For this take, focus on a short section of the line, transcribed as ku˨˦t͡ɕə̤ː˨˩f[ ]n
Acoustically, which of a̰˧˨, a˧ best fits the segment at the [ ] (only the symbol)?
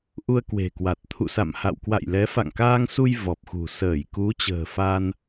a˧